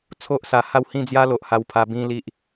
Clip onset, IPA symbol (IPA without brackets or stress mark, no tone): t͡sʰ